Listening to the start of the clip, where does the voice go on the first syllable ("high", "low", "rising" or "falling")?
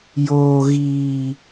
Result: low